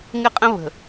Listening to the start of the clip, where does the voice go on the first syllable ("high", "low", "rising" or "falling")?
high